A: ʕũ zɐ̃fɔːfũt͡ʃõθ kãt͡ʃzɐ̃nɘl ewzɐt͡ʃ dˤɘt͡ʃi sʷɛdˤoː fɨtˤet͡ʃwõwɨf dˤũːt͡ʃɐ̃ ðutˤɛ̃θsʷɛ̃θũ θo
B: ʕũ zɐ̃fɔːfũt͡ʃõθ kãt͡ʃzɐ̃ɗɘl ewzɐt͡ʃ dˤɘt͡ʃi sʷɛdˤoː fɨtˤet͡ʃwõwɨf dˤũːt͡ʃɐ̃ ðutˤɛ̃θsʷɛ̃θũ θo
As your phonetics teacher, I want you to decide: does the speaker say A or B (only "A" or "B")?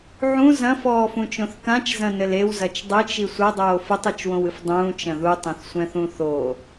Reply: A